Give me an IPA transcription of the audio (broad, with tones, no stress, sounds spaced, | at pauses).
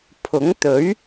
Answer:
pʰ ʊ˨˥ ŋ t̪ ɵ˨˥ ɥ